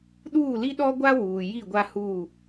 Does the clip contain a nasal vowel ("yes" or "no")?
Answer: no